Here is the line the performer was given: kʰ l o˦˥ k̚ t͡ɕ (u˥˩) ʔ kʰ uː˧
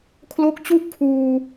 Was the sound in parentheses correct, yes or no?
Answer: yes